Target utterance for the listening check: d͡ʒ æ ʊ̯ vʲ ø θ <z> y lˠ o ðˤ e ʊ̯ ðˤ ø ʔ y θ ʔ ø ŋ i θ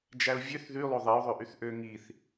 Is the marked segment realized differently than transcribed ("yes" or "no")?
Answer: yes